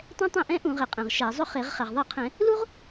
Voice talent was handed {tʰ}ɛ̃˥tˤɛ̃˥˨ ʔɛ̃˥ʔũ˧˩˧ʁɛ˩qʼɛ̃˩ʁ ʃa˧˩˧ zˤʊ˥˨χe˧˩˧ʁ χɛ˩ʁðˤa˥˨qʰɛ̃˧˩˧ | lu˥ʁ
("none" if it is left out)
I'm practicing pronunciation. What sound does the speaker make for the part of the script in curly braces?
tˤ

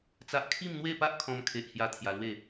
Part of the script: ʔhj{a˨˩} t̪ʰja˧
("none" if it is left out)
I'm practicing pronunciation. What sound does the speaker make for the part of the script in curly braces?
a˥˧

